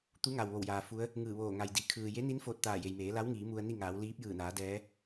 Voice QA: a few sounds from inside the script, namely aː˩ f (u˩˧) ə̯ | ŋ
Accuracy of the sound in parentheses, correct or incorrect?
incorrect